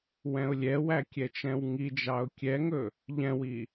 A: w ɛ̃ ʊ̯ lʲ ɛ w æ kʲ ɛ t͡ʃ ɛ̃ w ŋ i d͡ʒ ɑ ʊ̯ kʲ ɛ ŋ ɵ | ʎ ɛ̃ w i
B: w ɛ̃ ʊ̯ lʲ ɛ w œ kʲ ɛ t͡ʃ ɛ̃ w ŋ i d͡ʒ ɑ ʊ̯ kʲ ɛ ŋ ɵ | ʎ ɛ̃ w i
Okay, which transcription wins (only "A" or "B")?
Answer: A